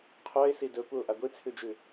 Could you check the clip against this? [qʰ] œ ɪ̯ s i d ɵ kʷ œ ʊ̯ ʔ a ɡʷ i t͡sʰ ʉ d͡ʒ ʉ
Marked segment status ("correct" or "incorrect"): correct